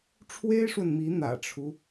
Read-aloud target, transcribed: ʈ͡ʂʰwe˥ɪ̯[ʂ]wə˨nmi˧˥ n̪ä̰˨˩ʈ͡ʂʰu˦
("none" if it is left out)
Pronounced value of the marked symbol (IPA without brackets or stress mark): ʂ